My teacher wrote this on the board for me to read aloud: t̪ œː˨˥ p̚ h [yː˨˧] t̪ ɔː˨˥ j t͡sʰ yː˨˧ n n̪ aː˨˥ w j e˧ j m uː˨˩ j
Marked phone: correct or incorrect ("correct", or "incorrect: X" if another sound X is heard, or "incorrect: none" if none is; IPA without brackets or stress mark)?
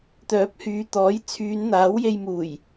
incorrect: yː˨